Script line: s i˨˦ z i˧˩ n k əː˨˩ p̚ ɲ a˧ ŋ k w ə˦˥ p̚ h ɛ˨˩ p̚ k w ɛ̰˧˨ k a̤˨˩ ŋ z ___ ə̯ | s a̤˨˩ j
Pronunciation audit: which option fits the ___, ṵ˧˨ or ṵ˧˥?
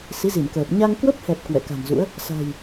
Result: ṵ˧˥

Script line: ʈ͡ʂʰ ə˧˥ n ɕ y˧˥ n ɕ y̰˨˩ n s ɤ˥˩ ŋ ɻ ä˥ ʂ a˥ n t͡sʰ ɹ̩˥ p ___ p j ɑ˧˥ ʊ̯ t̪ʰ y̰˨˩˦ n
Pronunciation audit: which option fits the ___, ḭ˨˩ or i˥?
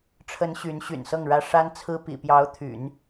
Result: ḭ˨˩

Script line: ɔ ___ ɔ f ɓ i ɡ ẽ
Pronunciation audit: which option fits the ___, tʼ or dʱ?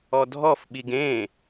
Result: dʱ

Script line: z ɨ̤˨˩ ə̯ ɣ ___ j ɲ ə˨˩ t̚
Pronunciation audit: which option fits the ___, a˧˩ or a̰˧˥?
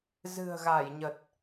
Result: a˧˩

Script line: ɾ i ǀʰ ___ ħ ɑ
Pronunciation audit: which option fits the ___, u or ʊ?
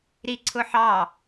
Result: ʊ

